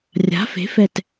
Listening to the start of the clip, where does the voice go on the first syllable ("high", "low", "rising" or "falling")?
rising